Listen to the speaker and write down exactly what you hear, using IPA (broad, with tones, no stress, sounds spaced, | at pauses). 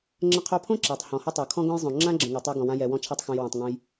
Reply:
ŋ͡ǁ ə̃˧ qʰ o˧ pʰ õ˦ ǁ a˨ tˤ h ɔ̃˨ h ə˦ tˤ o˨ kʰ ɔ̃˦ ɡ õ˦ j zˤ õ˨ ŋ͡ǁ ã˦ ɡ͡ǁ ə̃˨ ŋ a˨ tˤ a˧ ɡ ɔ̃˨ w ã˧ j ɛ˨ w ɔ̃˧ t͡ʃʰ a˧ tˤ x õ˨ j w ə̃˨ tˤ ŋ õ˧ j